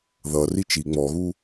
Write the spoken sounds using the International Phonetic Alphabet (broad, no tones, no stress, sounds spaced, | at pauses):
ð ʌ r i t͡ʃ i ŋ͡m ɔ ɣ u